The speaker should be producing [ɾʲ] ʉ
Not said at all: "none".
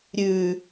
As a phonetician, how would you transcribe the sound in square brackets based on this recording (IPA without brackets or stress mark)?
ɾʲ